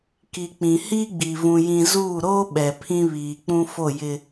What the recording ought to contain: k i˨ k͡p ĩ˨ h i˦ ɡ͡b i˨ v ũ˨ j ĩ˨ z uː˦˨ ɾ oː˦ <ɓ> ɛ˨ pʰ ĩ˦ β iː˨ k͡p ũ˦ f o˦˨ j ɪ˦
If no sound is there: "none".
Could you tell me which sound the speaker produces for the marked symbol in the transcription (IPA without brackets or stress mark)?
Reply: ɓ